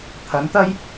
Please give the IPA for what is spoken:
t̪ʰ ɐ˨˥ n t̪ ɐ˥ j

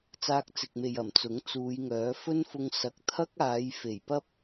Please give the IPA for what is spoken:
t͡s aː˧ k̚ t͡s ɪ˨ k̚ m e˨ j ɐ˨˩ m t͡s ʊ˨˥ ŋ t͡s uː˨˧ j ŋ œː˨˥ f ɵ˥ n f ʊ˧ ŋ s ɐ˨ k̚ t̪ʰ ɐ˥ k̚ aː˨˧ j f e˨˩ j p ɐ˥ p̚

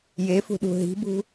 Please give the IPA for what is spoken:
j e f ṳ ɗ ṳ ɦ i̤ b ṳ

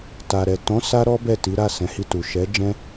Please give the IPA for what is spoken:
t a˨ ɾ ɛ˨ t ɔ̃˨˦ s a˦ ɾ ɔ˦ b ɛ˦˨ t i˨˦ ɾ a˦˨ s ɛ̃˨˦ h i˧ t u˨ ʃ ɛ˨˦ d͡ʒ ɛ̃˦

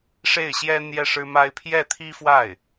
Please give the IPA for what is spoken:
ʂ e˥˩ ɪ̯ ɕ j ɛ˥ n̪ j ɛ˥˩ ʂ ɻ̩˥ m a˥ ɪ̯ pʰ j ɛ˥˩ t̪ʰ i˥ f w a˥˩ ɪ̯

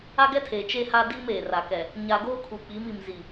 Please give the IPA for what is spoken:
a˦ ɡ ɛ˦ tʰ eː˨ t͡ʃ e˦ h a˦ d iː˦ m eː˨ r a˨ k ɛ˨ | ɲ a˨ ɡ oː˦ kʰ u˨ k͡p i˨˦ m i˨ m z i˨

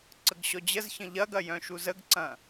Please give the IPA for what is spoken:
ǀ ə ɡ ɕ ɔ d͡ʑ ə z ç ə̃ ʎ ɐ ɡ ɐ j œ̃ ʃ u z ə ɡ ǀ ɐ̃

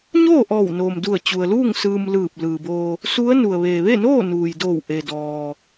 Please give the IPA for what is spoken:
ɲ oː˥˨ ʔ ɔː˧˩ w n oː˩ m d u˧˩ ə̯ t͡ɕ u˩ ə̯ l uː˥˨ ŋ s ɯː˧ m l ɯː˧˩ p̚ l ɯː˩ b oː˧ | s u˧˥ ə̯ n u˩ ə̯ ʋ eː˩ ʋ e˥˨ n oː˥˨ n uː˩ j d oː˧˩ w ʔ e˩ d ɔː˩

